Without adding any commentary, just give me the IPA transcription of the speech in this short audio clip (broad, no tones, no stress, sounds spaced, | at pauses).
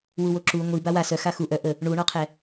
w u w o ǁ u ŋʷ i b a w a s œ x a x u ʔ œ ʔ ə | ɳ u ɳ ɔ qʰ ɛ